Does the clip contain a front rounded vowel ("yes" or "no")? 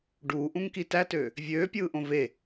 yes